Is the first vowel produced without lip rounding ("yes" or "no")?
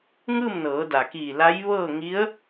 yes